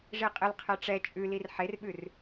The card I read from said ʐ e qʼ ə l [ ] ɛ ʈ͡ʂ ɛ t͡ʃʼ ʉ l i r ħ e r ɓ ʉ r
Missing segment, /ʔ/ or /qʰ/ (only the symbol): qʰ